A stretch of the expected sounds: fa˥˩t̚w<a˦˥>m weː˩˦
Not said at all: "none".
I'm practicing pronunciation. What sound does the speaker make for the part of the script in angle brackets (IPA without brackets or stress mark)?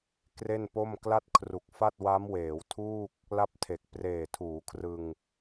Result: a˦˥